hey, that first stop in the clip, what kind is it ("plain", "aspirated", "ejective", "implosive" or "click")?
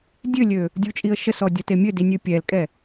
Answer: plain